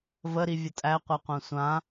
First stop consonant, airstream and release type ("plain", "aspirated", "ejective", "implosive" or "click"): ejective